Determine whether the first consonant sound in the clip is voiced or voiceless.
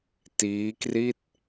voiceless